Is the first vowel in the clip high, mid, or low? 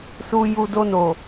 high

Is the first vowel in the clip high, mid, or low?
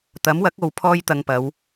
low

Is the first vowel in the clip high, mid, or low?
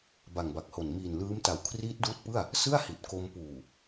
low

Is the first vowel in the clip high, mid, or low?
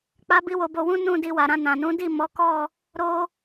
low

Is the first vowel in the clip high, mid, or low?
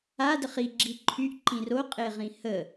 low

